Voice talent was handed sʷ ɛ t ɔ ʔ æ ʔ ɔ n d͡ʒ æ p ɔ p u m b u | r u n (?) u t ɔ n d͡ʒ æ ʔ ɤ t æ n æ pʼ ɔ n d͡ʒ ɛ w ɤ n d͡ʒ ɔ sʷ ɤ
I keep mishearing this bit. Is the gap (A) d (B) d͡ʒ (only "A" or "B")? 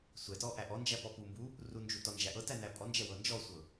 B